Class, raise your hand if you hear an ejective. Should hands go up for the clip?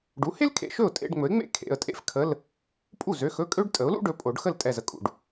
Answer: yes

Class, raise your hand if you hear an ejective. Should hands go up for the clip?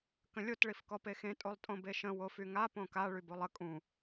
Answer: yes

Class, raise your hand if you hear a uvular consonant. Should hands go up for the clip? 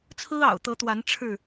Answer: no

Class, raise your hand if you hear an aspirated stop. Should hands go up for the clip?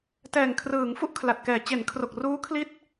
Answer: yes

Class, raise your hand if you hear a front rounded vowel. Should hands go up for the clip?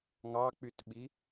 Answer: yes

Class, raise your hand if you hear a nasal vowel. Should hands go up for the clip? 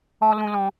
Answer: yes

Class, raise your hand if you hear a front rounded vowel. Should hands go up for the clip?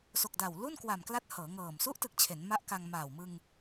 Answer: no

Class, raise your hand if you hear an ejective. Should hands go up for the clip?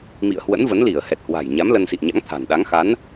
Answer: no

